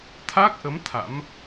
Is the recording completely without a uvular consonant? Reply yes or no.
yes